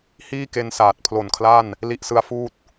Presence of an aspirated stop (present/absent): present